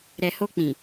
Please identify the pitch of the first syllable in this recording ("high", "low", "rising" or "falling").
low